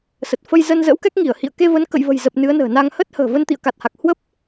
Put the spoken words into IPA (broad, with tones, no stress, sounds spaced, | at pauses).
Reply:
s ə˨˩ t̚ f ə˧ j z ə˧ n z ə̰ː˧˥ w k ɛ˦˥ k̚ ŋ i˧˩ ə̯ h ḭ˧˨ ə̯ k e˧ v ə˨˦ n k ə̰˧˨ j v ə̤˨˩ j z ə˨˩ p̚ n ɨ˨˦ ə̯ n ə̤ː˨˩ n a˧ ŋ h ə˦˥ t̚ h ə̤ː˨˩ v ə˧ n t̪ ḭ˧˨ ə̯ k a˨˩ t̚ h a˨˩ k̚ h w ə˦˥ p̚